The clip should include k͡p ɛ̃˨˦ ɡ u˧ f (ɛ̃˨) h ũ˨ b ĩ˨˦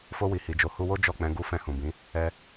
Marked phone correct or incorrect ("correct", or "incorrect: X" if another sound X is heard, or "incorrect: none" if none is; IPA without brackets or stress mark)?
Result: incorrect: ɛ̃˧